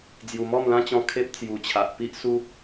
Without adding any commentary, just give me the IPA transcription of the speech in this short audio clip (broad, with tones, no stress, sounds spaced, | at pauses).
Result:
d͡z j u˨˩ m ɔ˥˧ m l ã˦ t͡ɕ ɔ̃˧ kʰ e˦ p̚ t͡s j u˨˩ t͡ɕʰ a˨ ʔ p i˦ ʔ s u˦